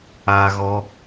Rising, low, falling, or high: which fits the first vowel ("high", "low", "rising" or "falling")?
high